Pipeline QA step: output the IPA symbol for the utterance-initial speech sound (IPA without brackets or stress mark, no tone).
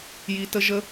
j